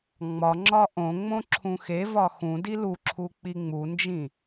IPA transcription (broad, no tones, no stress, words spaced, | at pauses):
ŋ͡mɒŋ͡ǁɒ ʔõŋ͡mõ ǁʰũxevɒ xũdi luǁʰu k͡piŋ͡mund͡ʒĩ